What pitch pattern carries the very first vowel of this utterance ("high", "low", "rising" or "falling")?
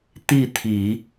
falling